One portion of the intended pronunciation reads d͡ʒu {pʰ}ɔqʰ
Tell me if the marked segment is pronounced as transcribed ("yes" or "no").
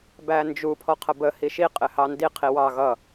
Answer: yes